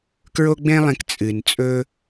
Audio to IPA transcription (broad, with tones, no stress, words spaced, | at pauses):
kɹo˥ɡ͡bẽ˥lˠẽ˧k t͡sʼɨ˩nt͡sʼɵ˧